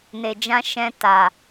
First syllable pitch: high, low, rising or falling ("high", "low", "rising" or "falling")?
low